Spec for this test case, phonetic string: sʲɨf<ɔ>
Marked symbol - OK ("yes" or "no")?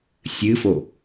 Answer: no